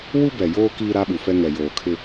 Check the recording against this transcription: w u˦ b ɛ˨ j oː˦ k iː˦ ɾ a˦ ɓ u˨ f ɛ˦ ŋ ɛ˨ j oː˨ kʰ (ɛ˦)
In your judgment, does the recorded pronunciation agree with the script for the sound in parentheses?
no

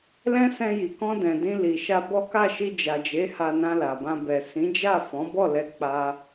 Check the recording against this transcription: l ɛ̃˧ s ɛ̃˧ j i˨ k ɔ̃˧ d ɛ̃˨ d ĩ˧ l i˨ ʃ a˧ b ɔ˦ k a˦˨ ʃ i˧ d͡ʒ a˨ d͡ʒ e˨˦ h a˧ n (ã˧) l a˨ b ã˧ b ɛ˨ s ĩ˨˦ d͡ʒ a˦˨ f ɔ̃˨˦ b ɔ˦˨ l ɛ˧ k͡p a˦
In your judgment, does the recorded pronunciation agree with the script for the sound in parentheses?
yes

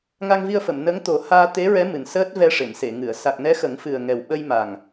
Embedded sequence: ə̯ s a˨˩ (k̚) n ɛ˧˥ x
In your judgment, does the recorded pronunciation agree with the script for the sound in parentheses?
yes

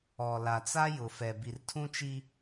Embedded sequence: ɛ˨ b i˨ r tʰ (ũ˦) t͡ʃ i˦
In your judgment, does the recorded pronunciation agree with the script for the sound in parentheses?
yes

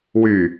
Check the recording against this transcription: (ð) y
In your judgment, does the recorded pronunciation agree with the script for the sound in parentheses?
no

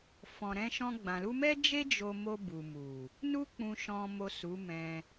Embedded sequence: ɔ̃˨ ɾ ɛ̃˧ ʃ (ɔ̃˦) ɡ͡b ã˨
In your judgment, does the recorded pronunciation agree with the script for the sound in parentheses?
no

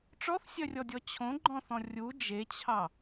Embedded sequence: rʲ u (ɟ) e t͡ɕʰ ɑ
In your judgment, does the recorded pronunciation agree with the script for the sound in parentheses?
no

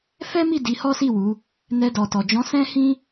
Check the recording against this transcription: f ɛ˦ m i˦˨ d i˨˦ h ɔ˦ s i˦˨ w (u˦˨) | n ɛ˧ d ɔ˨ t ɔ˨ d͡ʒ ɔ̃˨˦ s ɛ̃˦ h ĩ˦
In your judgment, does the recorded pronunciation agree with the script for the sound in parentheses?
no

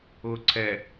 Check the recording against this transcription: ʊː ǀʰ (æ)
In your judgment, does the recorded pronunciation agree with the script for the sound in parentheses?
no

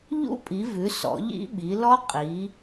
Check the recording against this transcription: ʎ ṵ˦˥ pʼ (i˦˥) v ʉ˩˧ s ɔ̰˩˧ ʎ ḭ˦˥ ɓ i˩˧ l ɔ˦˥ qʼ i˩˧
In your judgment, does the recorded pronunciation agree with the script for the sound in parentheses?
no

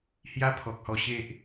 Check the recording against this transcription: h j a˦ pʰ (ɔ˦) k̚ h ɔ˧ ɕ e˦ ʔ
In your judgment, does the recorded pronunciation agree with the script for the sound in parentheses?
no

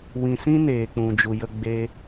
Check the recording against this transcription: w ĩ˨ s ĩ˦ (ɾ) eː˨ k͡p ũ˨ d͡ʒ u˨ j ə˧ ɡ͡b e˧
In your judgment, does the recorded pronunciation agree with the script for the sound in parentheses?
no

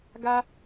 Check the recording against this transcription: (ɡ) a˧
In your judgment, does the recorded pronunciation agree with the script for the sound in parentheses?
yes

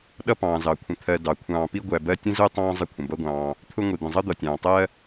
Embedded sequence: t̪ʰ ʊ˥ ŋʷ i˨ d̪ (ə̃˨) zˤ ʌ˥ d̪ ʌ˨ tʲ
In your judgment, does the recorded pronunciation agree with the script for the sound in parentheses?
yes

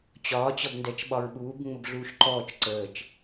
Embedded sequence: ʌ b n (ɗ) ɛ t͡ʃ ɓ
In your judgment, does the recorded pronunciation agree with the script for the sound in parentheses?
no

